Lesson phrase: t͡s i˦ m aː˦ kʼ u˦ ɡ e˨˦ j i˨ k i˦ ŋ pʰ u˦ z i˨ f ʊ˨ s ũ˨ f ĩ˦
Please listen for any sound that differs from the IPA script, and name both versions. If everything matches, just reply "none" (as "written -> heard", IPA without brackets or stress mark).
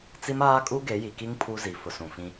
none